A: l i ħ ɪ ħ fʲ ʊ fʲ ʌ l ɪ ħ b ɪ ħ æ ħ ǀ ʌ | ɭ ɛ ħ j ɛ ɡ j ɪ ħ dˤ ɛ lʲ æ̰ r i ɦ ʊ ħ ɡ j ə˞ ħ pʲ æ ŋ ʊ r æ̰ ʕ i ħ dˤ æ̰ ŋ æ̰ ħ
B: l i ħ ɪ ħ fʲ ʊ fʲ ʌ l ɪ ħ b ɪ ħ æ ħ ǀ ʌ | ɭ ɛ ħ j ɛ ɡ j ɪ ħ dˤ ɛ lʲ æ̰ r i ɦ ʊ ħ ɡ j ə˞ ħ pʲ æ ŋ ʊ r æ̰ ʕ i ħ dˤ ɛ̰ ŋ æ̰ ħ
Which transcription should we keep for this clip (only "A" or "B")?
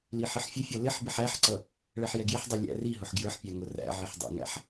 B